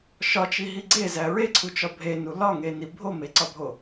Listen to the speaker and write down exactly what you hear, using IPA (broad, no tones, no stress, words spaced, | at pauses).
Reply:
ʃɒt͡ʃiɦi ɡ͡ǀezæ ɹeǀʰut͡ʃɒ bʱenu lɒŋeni bʱomeǀɒbʱo